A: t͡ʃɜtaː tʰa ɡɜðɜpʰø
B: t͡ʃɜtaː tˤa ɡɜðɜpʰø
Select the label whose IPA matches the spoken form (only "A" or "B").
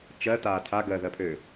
A